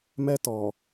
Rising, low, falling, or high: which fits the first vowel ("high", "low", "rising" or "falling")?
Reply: high